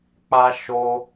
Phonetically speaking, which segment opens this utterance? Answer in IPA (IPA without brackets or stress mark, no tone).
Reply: k͡p